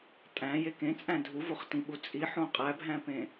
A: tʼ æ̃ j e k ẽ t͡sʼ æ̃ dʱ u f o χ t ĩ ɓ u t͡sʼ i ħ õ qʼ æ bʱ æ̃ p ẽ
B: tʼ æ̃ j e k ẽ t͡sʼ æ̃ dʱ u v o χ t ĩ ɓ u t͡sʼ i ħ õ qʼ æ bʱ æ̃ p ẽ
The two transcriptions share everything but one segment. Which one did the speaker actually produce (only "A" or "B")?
B